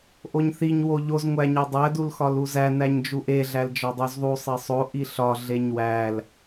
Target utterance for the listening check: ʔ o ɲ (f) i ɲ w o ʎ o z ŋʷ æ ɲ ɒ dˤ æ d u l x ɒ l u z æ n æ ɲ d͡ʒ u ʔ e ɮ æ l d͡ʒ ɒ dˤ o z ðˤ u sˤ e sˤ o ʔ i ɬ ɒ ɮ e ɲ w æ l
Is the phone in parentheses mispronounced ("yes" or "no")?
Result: yes